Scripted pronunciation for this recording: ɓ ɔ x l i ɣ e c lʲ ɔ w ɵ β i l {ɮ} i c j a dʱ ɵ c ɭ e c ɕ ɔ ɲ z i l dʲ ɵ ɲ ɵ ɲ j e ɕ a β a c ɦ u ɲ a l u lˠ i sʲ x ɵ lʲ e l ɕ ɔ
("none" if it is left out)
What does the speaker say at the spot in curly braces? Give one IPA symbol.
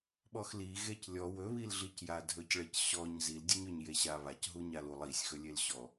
ɮ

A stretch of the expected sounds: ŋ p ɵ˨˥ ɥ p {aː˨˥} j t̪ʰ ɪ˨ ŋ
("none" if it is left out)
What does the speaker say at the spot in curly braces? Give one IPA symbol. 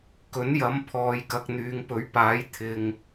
aː˨˥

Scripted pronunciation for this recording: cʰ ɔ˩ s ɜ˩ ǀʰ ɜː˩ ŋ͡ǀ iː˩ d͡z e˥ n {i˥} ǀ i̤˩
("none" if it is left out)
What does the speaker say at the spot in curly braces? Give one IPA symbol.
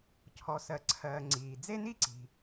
i˥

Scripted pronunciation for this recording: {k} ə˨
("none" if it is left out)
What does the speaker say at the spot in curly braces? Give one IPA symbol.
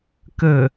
k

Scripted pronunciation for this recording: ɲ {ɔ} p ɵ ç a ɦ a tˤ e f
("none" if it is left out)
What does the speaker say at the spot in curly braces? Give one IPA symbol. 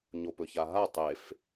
o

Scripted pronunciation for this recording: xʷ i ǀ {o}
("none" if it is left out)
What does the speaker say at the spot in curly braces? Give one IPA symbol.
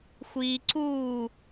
u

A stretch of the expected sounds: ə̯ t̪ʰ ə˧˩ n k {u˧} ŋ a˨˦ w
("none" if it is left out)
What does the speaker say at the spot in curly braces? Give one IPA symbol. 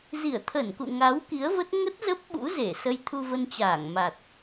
ṵ˧˨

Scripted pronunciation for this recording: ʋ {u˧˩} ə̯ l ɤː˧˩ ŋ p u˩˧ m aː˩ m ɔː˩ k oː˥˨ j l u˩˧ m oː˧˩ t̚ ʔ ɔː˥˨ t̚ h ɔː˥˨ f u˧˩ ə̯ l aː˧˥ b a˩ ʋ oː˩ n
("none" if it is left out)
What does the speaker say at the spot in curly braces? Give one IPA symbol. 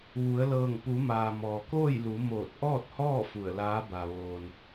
u˩˧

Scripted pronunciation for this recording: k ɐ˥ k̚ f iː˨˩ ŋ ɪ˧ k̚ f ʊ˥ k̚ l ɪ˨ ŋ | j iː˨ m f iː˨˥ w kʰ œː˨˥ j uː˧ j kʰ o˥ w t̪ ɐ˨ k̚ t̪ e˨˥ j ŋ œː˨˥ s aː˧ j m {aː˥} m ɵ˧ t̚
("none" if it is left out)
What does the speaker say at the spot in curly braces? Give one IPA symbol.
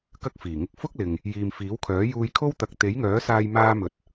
aː˥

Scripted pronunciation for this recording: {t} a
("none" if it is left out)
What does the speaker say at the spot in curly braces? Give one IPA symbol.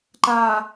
ǃ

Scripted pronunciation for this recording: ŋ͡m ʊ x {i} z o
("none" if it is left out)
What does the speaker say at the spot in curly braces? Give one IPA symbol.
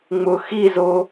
i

